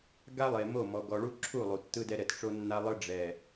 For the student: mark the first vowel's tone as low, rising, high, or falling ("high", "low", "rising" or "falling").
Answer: high